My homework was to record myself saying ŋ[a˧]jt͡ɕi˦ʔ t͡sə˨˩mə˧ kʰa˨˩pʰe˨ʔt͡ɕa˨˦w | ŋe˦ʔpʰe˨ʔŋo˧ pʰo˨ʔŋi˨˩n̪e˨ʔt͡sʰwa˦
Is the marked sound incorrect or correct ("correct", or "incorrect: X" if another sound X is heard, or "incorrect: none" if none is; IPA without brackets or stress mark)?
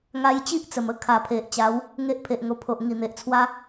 correct